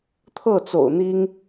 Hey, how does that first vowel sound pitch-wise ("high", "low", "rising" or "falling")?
falling